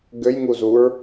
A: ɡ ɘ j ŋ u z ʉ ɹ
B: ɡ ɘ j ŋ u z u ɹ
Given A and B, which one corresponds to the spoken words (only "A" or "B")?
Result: B